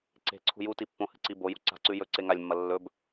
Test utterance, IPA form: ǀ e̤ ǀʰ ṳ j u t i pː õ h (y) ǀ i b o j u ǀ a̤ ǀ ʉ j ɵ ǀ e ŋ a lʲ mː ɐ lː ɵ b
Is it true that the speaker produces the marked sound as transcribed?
no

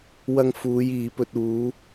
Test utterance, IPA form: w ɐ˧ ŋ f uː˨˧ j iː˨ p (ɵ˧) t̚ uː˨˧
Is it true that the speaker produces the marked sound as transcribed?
yes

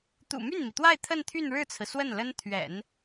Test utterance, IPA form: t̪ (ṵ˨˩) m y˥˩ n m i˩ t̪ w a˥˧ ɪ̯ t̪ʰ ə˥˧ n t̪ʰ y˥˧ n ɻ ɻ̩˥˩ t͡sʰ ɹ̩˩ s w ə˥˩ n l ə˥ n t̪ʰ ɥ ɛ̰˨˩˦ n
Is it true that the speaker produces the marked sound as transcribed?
yes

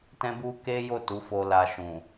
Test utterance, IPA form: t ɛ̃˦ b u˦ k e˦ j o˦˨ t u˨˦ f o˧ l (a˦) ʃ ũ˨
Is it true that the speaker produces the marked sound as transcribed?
no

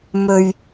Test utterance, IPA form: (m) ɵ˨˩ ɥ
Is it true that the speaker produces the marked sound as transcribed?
yes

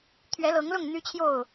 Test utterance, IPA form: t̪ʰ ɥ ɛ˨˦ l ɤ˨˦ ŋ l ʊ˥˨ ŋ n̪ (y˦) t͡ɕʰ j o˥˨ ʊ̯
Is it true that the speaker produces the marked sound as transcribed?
yes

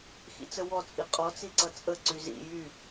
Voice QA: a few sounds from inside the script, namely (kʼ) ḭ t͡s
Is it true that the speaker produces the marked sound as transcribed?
no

